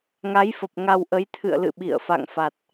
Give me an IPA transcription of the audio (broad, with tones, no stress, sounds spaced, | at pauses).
ŋ a˨˦ j f ə˨˩ p̚ ŋ a˧ w ʔ ə˨˦ j t̪ʰ ɨ̰˧˨ ə̯ l ɨ̰˧˨ ɓ ḭ˧˨ ə̯ f a̰˧˨ ŋ f a˨˩ t̚